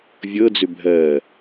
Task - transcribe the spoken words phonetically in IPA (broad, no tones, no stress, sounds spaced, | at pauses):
vʲ ɤ d͡z ʏ bʱ ɜ